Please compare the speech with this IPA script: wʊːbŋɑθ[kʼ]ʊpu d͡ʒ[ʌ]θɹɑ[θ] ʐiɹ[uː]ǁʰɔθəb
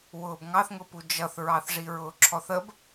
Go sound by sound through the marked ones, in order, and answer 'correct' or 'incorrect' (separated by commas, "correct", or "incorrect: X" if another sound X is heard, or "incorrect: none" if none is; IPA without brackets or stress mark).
incorrect: ŋ, correct, correct, incorrect: ʊː